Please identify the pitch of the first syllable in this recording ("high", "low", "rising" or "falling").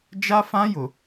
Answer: high